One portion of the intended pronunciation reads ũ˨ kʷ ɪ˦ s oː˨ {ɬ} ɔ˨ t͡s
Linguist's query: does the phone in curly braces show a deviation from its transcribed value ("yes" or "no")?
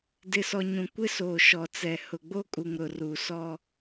yes